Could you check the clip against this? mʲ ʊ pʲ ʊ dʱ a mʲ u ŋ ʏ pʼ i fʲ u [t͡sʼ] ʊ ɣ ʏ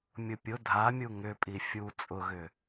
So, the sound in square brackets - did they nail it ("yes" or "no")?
yes